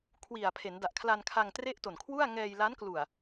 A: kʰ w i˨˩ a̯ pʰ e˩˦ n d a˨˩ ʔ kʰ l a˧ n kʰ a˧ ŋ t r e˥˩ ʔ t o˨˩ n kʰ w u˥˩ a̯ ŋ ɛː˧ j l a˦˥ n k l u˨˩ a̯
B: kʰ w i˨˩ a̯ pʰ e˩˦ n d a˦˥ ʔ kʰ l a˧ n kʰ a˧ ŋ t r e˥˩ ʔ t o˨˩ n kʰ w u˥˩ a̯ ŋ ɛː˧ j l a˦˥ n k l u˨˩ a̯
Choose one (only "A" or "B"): A